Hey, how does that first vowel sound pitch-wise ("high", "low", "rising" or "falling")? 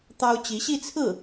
high